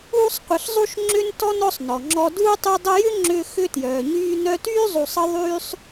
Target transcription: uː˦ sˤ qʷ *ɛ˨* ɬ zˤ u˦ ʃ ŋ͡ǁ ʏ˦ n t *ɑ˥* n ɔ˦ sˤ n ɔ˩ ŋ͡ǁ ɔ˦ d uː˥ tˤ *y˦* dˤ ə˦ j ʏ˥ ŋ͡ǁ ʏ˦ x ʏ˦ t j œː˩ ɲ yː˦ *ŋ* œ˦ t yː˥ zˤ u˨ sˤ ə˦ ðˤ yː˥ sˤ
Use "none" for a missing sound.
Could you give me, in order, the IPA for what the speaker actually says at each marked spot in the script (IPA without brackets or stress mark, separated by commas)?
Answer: ə˨, ɔ˥, y˦, n